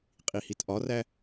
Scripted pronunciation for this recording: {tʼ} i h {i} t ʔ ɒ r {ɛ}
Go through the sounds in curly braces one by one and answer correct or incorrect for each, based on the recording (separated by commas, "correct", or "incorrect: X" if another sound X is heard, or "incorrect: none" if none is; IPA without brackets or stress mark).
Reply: incorrect: qʼ, correct, incorrect: æ